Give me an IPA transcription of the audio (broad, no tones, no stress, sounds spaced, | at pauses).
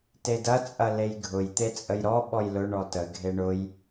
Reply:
t e d ɐ t͡sʼ ɐ l e j ɡʱ ʊ j t̪ e t͡sʼ ə j ɾ ɔ ɓ ɔ j l ʊ ɳ ɔ t ə ɡʱ e ɳ ʊ j